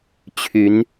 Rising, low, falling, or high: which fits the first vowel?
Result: rising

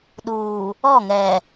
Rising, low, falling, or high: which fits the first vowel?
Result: low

